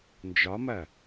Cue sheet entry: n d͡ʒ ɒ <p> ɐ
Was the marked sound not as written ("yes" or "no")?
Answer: yes